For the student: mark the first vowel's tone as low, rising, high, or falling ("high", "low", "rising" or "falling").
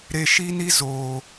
low